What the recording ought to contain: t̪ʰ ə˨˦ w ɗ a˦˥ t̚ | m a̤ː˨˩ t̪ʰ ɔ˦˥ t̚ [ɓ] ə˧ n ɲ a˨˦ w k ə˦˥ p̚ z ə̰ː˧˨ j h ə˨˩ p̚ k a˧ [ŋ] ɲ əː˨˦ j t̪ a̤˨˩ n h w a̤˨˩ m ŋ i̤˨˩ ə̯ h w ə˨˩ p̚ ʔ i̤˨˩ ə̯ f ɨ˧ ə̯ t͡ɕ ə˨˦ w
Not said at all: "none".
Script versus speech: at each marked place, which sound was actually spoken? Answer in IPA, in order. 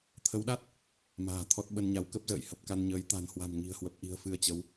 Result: ɓ, n

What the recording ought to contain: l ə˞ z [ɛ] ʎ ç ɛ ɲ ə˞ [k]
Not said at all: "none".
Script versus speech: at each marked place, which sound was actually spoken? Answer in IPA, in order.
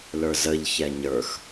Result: ə, x

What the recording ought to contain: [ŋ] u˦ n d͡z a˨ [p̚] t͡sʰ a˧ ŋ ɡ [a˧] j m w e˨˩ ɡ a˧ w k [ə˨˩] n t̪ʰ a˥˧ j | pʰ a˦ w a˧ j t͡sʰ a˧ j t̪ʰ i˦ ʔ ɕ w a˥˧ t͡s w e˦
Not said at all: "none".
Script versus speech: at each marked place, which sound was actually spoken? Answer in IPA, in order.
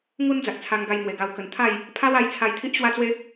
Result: ŋ, k̚, a˧, ə˨˩

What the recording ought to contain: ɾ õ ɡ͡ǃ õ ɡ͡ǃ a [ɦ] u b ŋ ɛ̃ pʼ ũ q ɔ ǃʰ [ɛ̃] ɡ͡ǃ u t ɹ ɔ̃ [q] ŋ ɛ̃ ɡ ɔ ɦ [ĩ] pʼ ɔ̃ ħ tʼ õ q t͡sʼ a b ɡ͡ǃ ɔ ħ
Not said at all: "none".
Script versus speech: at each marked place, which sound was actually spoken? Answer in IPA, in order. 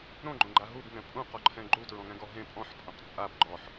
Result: ɦ, ɛ̃, none, ẽ

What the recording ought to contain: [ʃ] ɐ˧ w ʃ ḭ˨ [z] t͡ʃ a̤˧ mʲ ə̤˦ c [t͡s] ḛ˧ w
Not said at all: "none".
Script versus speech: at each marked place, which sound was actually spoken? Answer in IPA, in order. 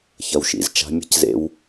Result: ç, z, z

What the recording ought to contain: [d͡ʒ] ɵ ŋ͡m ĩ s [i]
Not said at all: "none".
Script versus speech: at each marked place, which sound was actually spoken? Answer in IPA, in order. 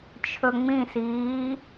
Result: t͡ʃʰ, iː

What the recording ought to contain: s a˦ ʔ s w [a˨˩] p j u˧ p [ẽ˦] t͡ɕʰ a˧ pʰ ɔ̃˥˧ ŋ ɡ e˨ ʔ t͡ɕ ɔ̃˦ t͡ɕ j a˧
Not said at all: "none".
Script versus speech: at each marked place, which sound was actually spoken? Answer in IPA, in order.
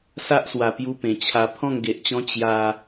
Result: a˨˩, ẽ˨˩

